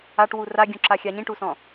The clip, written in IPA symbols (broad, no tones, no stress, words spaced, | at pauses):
aʈwu raɡʲũǁa xʲaɲĩʈusɔ̃